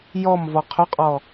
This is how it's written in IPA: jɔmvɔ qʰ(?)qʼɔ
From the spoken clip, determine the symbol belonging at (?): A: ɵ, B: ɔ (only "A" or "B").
A